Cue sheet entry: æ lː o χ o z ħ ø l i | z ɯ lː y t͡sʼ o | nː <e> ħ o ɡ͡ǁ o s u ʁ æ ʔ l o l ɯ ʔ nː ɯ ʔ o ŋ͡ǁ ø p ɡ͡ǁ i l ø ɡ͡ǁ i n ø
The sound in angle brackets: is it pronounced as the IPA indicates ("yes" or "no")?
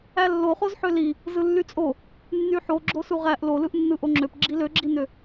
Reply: no